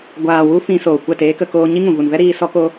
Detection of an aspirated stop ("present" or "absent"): absent